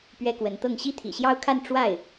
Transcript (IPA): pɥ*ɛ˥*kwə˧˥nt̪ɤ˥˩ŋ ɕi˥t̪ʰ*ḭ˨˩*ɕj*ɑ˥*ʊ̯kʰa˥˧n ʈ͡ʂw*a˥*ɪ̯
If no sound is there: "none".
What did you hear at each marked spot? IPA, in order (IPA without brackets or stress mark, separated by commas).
ɛ˥, ḭ˨˩, ɑ˥, a˥˩